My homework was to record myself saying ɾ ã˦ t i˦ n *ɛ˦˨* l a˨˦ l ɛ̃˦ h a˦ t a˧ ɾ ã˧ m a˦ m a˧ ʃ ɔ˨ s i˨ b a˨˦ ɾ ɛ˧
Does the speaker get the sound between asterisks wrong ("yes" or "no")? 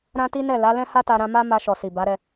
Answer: no